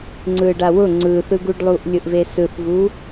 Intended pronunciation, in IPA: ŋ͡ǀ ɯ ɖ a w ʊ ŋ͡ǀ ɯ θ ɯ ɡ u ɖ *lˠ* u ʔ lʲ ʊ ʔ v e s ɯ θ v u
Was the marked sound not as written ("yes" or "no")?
no